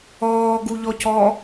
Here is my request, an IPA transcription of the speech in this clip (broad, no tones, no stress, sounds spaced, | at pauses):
ɔː ɡ u ʎ ɔ c ɔ